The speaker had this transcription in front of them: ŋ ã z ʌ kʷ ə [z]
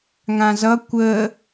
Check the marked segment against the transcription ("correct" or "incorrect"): incorrect